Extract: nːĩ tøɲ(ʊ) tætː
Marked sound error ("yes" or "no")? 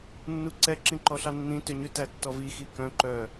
yes